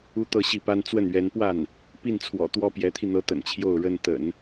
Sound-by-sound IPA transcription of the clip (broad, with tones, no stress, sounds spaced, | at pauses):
u˥˧ t̪ ɤ˥˧ ɕ i˥˩ p a˥ n t͡s w ə˥˩ n ɥ ɛ˧˥ n p w a˥˩ n | p i˥˩ n t͡sʰ w ɔ̰˨˩ t̪ w ɔ˥˩ p j ɛ˧˥ t̪ʰ i˧ n̪ ɤ˧˥ t̪ ə̰˨˩ n t͡ɕʰ j o˥˩ ʊ̯ ɻ ə˥ n t̪ ə̰˨˩˦ n